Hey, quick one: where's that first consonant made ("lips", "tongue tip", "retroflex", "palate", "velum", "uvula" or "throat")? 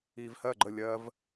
lips